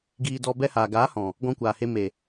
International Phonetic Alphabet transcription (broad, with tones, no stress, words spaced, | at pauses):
ɡiː˧ dɔ˧ bɛ˧haː˨ ɡaː˨˦hɔ̃˨ | ɡɔ̃˧kʷaː˨he˧ me˨